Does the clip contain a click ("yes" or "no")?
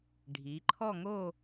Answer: yes